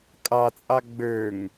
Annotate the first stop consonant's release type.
ejective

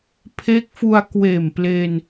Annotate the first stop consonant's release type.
aspirated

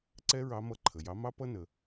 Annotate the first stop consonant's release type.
click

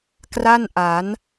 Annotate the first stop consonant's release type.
plain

